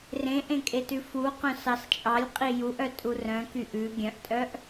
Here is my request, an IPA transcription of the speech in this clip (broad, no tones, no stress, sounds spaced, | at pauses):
r ẽ ʔ ẽ kʼ e t ʉ f u q œ̃ s ɑ s t͡ʃʼ ɑ lʲ qʼ i j u ʔ œ tʼ u r œ̃ k y ʔ ʉ ɡʲ œ̃ ʔ tʼ œ ʔ